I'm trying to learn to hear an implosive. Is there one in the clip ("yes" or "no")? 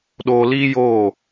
yes